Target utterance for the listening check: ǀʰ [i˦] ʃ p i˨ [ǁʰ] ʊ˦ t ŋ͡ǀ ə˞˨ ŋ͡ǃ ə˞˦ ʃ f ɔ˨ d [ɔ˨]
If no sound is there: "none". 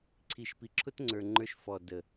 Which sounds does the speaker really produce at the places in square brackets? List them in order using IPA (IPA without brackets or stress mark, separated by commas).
i˨, ǁʰ, ə˨